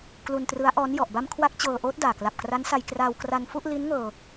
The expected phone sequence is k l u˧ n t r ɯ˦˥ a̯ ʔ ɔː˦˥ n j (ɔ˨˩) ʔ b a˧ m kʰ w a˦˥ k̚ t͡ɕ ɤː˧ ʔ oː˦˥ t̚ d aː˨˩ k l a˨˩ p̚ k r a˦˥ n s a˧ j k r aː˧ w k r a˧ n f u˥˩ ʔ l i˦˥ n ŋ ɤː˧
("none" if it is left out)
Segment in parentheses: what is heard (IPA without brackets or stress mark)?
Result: ɔ˨˩